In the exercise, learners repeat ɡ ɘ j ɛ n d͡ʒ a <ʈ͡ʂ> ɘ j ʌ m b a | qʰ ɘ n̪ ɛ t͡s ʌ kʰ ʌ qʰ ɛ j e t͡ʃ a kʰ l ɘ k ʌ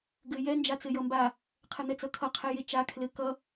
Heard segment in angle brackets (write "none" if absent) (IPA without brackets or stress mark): t͡s